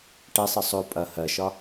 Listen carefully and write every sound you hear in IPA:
ʈ ɛ sˤ ɯ sˤ o pʼ ɐ h ɜ ʃ ɒ

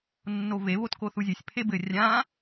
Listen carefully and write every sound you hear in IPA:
nː o v e β o t k o θ u zʲ e sʲ pʰ e b ɘ rʲ ã

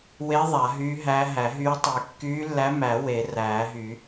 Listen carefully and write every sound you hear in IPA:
w e˧˥ ðˤ a˨˩˦ ɦ yː˧˥ ɦ æ˧˥ ɦ æ˨˩˦ ɦ yː˧˥ tˤ y˨˩˦ kː yː˧˥ lː æ˧˥ m æ˨˩˦ w e˨˩˦ r æː˨˩˦ ɦ y˨˩˦

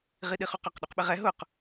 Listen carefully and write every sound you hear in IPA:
ʁ i ɗ i χ u q ɔ q ɗ u q ɓ ɪ ʁ ɛ ɦ ʊ q

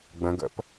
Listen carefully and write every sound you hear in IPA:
ɡ͡b ə̃ ɡ ə̰ p

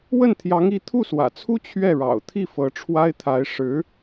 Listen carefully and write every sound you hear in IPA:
w ə˥˩ n t̪ʰ j ɑ˧˥ ŋ i˧˥ t̪ʰ u˥˩ s w ä̰˨˩ t͡sʰ u˥ t͡ɕʰ ɥ ɛ˥˩ ɻ ɑ̰˨˩ ʊ̯ t̪ʰ i˥˩ f ɤ˧˥ ʈ͡ʂʰ w a˥ ɪ̯ t̪ʰ a˧˥ ɪ̯ ʂ ɻ̩˧˥

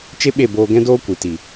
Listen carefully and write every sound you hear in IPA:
t͡ʃ e˦ ɓ e˦˨ b oː˧ ɡ ɛ̃˦ d oː˦ kʷ ɨ˨ t i˨

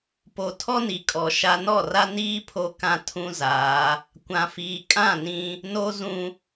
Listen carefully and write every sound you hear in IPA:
p o˨ tʰ ɔ˦ n i˨ kʼ ɔ˨ ʃ a˦ n ɔ˦˨ r a˦ n iː˦ pʰ o˦ k ã˦ tʰ ũ˦ z aː˨˦ | kʷ ã˨ f iː˨ kʼ ã˦˨ n ĩ˦ | n o˦ z ũ˦

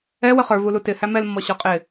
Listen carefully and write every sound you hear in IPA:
ɛ w ə χ ə˞ v u l u t ɪ h æ m ɛ l mː ɔ ɕ ɔ qʼ ɪ

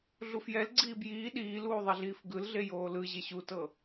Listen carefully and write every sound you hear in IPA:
ɮ u f j ɛ l ɡ͡ǀ iː b j iː ɗ iː l uː ðˤ ɛ ɮ iː f ɡ ɯ l ɮ e j oː l ɯ ʑ e ɕ u t ɤ

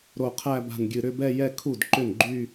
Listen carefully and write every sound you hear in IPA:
ɾ o˧˩ qʰ æ˥˧ b a̤˧˩ n ɡʲ ɨ˧˩ ɾ ʏ˥˧ b ɛ˥˧ j ɛ˥˧ kʰ u˥˩ d ǃ ʏ˥˩ n ɡ͡ǃ y˥˧

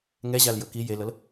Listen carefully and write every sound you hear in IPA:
ŋ ɛ ʑ a l j ɤ k i j e l ɤ l

